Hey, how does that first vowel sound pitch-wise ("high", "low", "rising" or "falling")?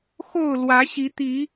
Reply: falling